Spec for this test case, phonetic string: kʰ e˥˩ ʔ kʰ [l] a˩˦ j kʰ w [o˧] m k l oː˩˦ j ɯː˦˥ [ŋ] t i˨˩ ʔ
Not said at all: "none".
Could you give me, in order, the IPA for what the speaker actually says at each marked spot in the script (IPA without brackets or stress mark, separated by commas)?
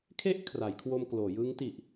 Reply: r, o˧, ŋ